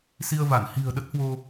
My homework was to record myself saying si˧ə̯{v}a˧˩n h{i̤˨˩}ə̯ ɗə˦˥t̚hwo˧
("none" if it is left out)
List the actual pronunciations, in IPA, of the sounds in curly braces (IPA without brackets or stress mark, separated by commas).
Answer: v, i̤˨˩